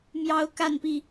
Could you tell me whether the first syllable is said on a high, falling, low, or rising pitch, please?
high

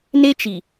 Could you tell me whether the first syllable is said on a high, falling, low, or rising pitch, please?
high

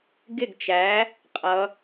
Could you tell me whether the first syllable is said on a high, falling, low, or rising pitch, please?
falling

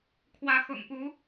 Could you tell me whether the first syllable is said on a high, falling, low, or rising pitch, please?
rising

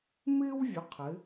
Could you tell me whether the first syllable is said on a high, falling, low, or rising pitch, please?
high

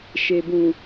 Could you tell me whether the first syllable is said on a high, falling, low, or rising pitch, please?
low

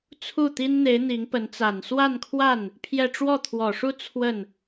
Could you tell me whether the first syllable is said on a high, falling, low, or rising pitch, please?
falling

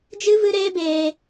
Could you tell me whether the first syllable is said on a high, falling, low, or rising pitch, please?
high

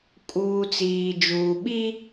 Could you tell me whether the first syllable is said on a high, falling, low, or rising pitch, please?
low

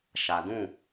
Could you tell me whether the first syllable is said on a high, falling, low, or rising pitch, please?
low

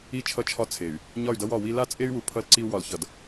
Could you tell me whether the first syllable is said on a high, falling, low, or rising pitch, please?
falling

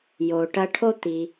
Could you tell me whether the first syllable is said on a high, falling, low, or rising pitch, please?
low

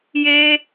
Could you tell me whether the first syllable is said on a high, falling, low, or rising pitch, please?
high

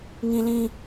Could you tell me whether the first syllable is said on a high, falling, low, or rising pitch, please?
high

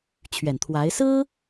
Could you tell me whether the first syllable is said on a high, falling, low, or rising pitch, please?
low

